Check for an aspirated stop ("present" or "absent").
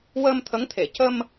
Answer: present